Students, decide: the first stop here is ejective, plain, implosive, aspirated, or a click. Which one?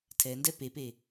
aspirated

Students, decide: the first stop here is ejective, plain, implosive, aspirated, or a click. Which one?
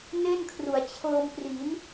aspirated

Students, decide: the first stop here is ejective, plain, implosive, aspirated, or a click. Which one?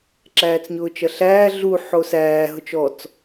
click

